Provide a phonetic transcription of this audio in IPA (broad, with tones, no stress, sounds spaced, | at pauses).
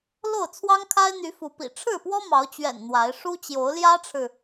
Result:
l o˥˨ ʊ̯ t͡sʰ w ɑ˦ ŋ kʰ a˦ ɪ̯ n̪ y˨˦ f u˨˦ p ḭ˨˩ ʈ͡ʂʰ ɻ̩˥˨ p w ɔ˦ m ɑ˨˦ ʊ̯ t͡ɕ ɥ ɛ̰˨˩ n n̪ w a˨˦ ɪ̯ ʂ u˦ t͡ɕ j o˨˦ ʊ̯ l j ä˦ ʈ͡ʂʰ ɻ̩˨